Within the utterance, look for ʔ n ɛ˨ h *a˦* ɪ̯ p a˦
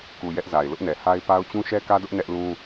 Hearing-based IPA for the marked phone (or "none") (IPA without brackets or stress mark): a˦